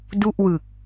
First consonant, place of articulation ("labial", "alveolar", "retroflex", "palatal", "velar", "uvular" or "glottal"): alveolar